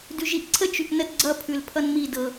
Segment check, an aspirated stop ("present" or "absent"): present